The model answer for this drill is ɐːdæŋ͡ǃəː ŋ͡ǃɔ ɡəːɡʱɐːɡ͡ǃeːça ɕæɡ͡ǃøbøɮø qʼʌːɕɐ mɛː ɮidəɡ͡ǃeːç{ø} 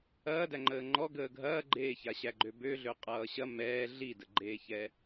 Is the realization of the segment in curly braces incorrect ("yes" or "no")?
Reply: yes